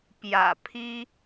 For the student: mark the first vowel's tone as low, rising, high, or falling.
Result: low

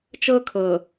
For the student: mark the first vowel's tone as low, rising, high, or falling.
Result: high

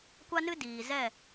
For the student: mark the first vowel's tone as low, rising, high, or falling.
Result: high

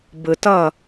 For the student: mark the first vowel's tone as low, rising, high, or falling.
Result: low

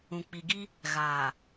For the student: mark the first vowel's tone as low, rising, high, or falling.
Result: low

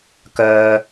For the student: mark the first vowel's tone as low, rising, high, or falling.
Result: low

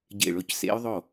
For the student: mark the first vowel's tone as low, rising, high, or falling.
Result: falling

